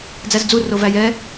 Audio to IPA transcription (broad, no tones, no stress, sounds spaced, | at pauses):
d͡z æ z d͡z u r o v æ j ɛ